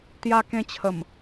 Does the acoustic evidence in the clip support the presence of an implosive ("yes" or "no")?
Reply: no